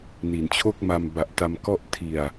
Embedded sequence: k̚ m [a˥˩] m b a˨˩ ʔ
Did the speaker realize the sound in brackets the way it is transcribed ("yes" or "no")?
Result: no